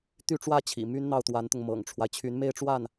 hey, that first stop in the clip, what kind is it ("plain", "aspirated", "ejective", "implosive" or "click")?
plain